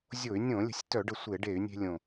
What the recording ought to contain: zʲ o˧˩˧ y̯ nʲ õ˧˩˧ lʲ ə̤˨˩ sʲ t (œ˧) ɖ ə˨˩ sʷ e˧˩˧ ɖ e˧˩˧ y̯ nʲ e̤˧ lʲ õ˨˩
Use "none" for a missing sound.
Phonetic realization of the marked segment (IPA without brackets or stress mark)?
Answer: œ˧˩˧